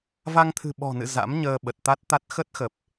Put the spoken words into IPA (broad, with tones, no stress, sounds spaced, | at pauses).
v a˧ ŋ t̪ʰ ɨ̤˨˩ ɓ ɔ̤˨˩ n ɨ̰˧˨ z a̰˧˥ m ɲ əː˧ ɓ ə˨˩ t̚ t̪ a˦˥ t̚ t̪ a˦˥ t̚ x ə˦˥ t̚ x ə˨˩ p̚